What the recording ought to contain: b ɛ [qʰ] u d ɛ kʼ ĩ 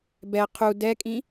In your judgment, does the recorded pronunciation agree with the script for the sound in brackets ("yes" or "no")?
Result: yes